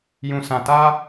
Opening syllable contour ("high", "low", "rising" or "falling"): low